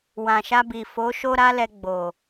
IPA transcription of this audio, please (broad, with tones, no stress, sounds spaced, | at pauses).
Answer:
w ã˨ ʃ a˧ b i˨ f o˨˦ ʃ o˦ ɾ a˦ l ɛ˧ ɡ͡b o˨